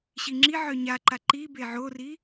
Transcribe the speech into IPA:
ɕ i ŋ͡ǁ i ʕ œ ɲ a ǃ a ǃ i b e ʕ o r i

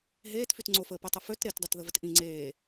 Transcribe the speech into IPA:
ɦ eː t f y t ŋ͡ǀ o f əː p ø tˤ ə f ø t ɾ e t dˤ ɛ t ð ə v ə t ʔ ĩ ŋ͡ǀ eː

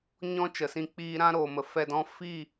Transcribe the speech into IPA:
ɲ ɔ̃˦ t͡ʃ ə˨ s ĩ˧ k͡p iː˧ ɾ ã˦ ɾ oː˨ m ə˨ f ɛ˧ d ɔ̃˦ f i˦˨

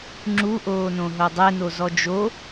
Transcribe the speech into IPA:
ŋ͡ǁ u ʔ oː n õ ɦ o dˤ ɛ n o z ɔ d͡ʒ o

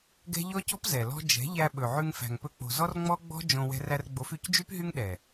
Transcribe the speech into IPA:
ɡ ɛ̤˦ ʎ ɔ˦ c ɔ̤˦ p z ɛ˨ l ɔ̤˦ d͡ʒ ɛ̤˨˦ ʎ æ˧ ɓ ɵ˨ ʕ ʉ˧ ŋ f æ̤˨ ŋ p ɵ˧ k͡p o̤˨ z ɔ˦ r ŋ͡m ɔ˦ ɡ͡b ɔ̤˦ d͡ʒ õ˧ w ɛ̤˧ r æ˧ r ɡ͡b o˨˦ f y˨˦ c d͡ʒ y˦ p ɦ y˦ ŋ ɗ ɛ˨

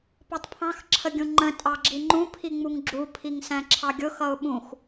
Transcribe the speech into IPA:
p ɒ tˤ pʰ ɑ̃ x ǁʰ ə ɡʲ ũ ŋ͡ǃ ə̃ tʼ ɑ ɡ͡ǁ i ŋ͡ǃ ũ pʰ i ŋ͡m u ŋ ɡ͡ǁ u pʰ i ŋ s æ̃ ǁʰ ɑ ɡʲ ʊ x ʌ ʊ̯ ɓ ũ x

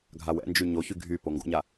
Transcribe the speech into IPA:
ɡʱ a w ɛ̰ n d͡ʒ y ɲ o ç y ɡʱ y p o ŋ ɡ o̰ ɲ a

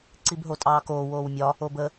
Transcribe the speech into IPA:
ǀ i b ɦ o tʼ ɑː k oː w oː w mʲ ɒ | o b ə

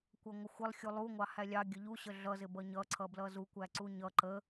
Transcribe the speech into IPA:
kʷ ʌ ŋʷ ə xʷ ɪ lˠ xʲ u lˠ u ŋʷ ɑ h æ lʲ ɑ ɡʲ ə ʎ u ɕ ə ɮ ʌ z ɪ b ʌ ɲ ʌ ǀʰ ʌ b l ʌ z u kʷ æ ǀ u ɲ ʌ ǃ ə

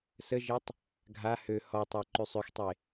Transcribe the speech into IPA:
s ə ʒ e tˤ | ɡʱ a h ø h ɔ tˤ a ǃ y sˤ ø x tˤ e

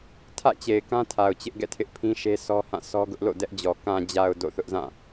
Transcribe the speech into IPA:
tʰ ä̰˦˨ t͡ɕ e˨ ɪ̯ k ã˦ tʰ a˨ ʊ̯ t͡ɕ ɪ˦ ʔ ɡ ɛ̰˦˨ tʰ ɪ˦ ʔ pʰ ĩ˦ ʃ e˦ sʰ ɔ˦ h ã˦˨ sʰ ɔ˦ ɡ ʊ˦ ʔ l o̰˦˨ d ɛ˦ ʔ d͡ʑ ɔ˨ k ã˨ d͡ʑ a˨ ʊ̯ d o̰˦˨ θ ʊ˦ ʔ z ã˦˨

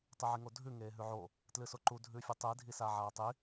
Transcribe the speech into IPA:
tˤ ɨ ʕ i ŋ o dʱ ʉ ŋ eː ɦ ʉ ʕ o | t l ɨ s o ǃ u dʱ ʉ fʲ u tˤ ɨ dʱ i s a ʕ aː tˤ i

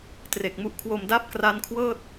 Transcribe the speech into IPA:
t r e˨˩ k̚ m u˦˥ ʔ kʰ w o˧ m d a˦˥ p̚ k r a˦˥ n kʰ w ɤː˥˩ t̚

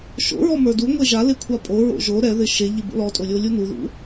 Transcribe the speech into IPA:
ʃ o̰ ɹ ɔ m ə˞ d u ŋʷ e ʒ a l ɪ kʷʰ a pʼ o ɹ o̰ ʒ o ɾ ɛ ð ɪ ʃ e ʎ ɪ b o̰ l ɔ tʼ o lʲ o lʲ u n u ð ṵ

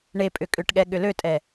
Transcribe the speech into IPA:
ɳ e pʼ ʏ kʼ ʏ ʈ ɠ ɛ ɠ ʏ l ø tʼ ɛ

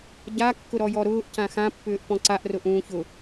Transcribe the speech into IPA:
ɟ a kː ʊ ɾ ɔ j ɔ ɾ ʊː ʔ c ã x ã pː ʏː ʔ p ɔ̃ ǀ a ʔ r ʊ ʔ ũː ç ʊ

